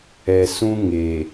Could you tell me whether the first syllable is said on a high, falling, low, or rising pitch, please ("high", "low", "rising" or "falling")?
low